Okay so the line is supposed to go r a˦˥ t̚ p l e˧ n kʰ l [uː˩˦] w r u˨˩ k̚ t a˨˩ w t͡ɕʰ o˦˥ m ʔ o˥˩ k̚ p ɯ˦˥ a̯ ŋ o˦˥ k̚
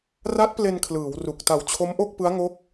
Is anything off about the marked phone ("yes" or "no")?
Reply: yes